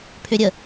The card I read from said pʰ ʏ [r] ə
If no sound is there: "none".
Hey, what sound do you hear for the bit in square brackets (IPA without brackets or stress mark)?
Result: ɾʲ